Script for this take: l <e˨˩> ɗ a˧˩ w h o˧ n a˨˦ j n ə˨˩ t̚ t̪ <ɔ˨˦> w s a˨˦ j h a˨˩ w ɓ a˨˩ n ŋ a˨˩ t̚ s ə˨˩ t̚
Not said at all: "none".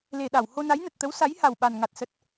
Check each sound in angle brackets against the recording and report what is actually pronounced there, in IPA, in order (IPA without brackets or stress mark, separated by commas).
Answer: e˨˩, ə˨˦